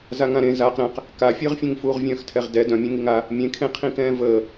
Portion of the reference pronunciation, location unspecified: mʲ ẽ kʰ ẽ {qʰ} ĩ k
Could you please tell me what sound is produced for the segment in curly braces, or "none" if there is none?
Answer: qʰ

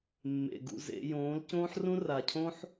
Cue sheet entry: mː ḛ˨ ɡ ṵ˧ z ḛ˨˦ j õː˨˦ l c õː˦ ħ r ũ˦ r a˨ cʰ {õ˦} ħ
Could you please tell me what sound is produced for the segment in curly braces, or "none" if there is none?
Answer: õ˦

